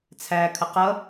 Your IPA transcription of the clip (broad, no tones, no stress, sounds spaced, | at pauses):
t͡sʰ æ kʰ ə q ʌ